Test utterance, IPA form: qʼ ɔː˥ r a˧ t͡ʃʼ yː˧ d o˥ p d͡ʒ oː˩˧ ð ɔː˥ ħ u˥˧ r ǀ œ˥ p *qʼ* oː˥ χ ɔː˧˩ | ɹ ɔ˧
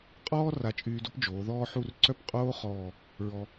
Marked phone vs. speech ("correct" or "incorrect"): correct